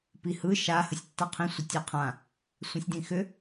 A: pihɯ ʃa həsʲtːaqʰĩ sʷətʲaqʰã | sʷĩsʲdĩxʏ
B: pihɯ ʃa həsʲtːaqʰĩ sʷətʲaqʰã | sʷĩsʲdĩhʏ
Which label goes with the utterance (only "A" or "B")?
A